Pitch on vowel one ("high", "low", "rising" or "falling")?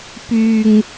low